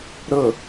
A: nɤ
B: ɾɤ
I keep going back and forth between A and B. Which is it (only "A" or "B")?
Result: B